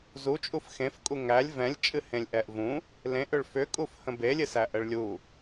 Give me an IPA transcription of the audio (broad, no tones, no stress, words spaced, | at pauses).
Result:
zut͡ʃʼuf xẽfkʼu ŋælʲ vɛ̃lʲt͡ʃʼɨ hẽlʲʔɛʔvũ | lẽʔʏɭ fʏkʼuf hə̃belʲɨsæ ʔəɭlʲu